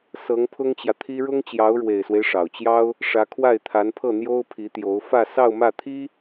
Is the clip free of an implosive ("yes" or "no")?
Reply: yes